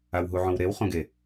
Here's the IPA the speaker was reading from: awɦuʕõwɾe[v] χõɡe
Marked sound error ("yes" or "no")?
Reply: yes